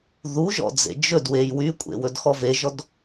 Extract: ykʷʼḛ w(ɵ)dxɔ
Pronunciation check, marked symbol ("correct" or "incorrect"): correct